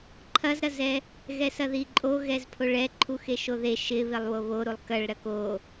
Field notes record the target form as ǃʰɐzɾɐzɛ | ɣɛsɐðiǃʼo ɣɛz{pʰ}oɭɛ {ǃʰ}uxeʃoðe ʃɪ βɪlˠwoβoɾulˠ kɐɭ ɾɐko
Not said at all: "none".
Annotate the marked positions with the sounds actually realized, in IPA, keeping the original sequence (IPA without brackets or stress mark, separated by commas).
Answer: pʰ, ǃʰ